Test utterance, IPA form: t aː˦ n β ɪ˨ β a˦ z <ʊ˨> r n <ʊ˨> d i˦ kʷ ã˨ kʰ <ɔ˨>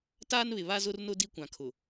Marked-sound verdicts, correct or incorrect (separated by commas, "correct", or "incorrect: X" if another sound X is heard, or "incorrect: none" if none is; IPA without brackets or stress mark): incorrect: ʊ˦, incorrect: ʊ˦, incorrect: ʊ˨